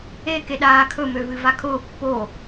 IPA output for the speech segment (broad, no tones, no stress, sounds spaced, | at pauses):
e k e ɗ aː kʰ ɵ m ø v ɨ v a kʰ ʊː pː o